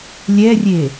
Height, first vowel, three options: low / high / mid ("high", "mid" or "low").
mid